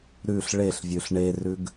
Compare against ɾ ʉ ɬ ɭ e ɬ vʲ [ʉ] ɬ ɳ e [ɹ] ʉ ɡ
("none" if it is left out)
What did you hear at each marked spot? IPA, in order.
ʉ, r

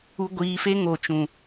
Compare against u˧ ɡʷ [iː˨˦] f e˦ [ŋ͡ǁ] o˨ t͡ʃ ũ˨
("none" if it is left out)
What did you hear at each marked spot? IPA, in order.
iː˨˦, ŋ

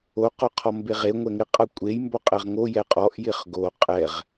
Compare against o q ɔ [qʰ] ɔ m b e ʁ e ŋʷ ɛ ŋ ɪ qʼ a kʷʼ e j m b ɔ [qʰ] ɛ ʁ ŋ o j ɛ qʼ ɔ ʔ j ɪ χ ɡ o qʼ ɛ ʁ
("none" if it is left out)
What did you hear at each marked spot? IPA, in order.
qʰ, qʼ

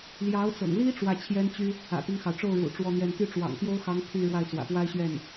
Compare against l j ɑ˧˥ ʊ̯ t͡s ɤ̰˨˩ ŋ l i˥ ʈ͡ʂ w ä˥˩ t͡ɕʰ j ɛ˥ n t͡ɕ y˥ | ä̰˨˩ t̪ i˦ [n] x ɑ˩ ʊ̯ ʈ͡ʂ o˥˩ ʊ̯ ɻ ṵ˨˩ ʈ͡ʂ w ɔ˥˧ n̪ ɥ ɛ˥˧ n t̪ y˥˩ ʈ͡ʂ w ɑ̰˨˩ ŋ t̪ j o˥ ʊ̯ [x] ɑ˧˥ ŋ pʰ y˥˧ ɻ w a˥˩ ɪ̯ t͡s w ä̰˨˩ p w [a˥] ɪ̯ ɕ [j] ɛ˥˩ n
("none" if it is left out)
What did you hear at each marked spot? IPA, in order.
ŋ, x, a˥, ɥ

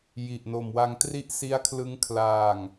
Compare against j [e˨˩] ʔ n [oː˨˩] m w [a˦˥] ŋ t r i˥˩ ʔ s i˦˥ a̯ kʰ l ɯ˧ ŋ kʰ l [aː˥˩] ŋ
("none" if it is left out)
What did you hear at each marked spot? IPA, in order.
i˨˩, o˨˩, a˧, aː˨˩

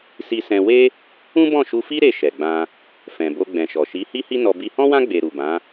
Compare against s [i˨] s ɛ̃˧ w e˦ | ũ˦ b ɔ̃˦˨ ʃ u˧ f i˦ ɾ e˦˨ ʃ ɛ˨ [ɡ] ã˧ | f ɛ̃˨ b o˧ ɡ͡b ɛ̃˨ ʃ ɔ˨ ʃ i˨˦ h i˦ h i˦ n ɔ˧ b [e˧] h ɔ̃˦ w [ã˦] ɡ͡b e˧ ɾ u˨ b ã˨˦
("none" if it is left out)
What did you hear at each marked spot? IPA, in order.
i˧, ɡ͡b, i˧, ã˦

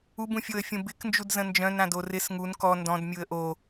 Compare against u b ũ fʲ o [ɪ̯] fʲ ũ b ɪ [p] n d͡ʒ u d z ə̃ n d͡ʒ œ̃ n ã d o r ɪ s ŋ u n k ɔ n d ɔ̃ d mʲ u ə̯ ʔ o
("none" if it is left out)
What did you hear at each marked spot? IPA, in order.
ə̯, k

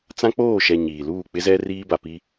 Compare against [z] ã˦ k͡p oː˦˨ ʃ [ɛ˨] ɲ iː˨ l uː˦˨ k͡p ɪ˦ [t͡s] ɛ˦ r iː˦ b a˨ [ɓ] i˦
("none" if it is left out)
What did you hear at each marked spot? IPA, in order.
t͡s, ɛ˨, z, p

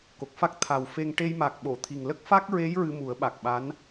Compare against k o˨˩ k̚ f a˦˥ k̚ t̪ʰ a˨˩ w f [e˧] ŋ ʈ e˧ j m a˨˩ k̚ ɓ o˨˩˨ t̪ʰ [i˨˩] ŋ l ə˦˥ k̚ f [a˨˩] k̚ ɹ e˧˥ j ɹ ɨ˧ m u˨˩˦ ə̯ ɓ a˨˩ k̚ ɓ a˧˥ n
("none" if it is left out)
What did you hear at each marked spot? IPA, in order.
e˧, i˨˩, a˦˥

